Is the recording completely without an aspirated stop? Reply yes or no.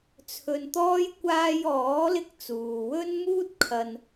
no